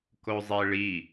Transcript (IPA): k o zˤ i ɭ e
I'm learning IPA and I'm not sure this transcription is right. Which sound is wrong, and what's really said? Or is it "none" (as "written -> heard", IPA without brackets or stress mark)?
e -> i